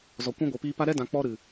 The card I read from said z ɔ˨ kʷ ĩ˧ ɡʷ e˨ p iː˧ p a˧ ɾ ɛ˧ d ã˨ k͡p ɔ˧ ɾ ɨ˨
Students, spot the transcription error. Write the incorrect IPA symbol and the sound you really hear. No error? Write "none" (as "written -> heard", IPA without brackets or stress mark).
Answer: none